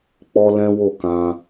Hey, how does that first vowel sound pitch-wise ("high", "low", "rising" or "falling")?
high